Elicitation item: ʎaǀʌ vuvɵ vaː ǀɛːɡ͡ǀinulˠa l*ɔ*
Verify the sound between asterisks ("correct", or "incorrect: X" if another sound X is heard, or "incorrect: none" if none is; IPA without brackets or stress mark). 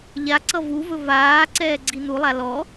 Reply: correct